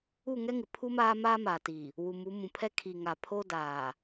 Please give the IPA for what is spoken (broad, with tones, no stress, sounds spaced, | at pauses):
u˦˨ ŋ ɛ˦ ŋ ɪ˨ pʰ u˦ m aː˦ m aː˦ m aː˨ t iː˨ | w u˨ m u˨˦ m ũ˨ pʰ ɛ˦ kʰ i˨ ŋ a˨ pʰ o˦ d aː˨